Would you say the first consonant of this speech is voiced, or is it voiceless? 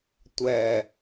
voiceless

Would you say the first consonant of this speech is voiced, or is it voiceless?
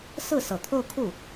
voiceless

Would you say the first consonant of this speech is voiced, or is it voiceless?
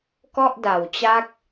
voiceless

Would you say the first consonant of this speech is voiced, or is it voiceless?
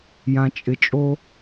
voiced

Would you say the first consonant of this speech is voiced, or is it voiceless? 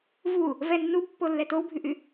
voiced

